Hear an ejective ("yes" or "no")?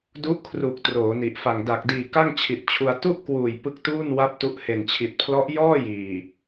no